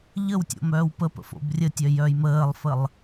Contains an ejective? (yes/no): no